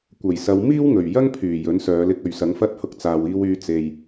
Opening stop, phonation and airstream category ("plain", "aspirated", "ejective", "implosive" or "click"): plain